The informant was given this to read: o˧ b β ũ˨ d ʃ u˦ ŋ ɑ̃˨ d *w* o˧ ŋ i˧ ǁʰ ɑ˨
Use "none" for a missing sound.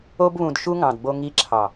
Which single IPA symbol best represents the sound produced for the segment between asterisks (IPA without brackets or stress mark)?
b